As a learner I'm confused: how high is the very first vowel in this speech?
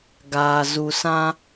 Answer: low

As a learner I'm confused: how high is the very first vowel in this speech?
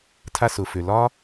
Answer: low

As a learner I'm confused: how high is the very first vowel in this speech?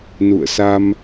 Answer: high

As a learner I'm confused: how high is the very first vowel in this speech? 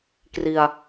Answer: high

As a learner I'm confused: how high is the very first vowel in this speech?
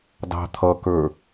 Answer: low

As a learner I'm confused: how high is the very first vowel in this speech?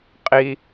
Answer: high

